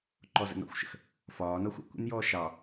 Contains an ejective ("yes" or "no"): no